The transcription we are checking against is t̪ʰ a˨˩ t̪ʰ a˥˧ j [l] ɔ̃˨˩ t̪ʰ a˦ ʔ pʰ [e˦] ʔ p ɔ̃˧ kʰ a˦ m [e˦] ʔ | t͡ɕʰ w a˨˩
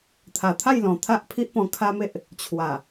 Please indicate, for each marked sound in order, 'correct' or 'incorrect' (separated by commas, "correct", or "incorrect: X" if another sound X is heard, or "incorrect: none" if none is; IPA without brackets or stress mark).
correct, incorrect: i˦, correct